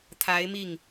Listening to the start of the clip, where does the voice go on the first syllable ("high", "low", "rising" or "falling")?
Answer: rising